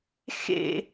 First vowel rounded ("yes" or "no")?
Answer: no